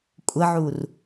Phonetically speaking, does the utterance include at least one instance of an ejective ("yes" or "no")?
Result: yes